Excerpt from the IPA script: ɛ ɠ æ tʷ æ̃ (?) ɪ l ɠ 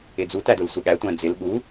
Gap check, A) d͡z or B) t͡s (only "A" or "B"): A